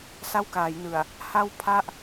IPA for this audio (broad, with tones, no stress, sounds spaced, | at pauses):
s a˥˩ w k aː˩˦ j n ɯ˨˩ a̯ | h a˥˩ w pʰ a˥˩ ʔ